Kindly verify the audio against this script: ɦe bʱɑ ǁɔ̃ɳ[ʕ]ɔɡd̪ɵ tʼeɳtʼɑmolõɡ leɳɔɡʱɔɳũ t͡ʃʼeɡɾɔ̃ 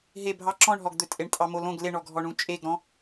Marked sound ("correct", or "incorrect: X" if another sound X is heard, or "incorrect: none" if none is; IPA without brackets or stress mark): incorrect: ɦ